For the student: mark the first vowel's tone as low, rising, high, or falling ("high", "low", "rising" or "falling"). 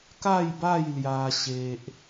falling